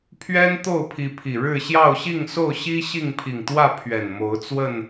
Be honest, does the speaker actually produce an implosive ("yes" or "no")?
no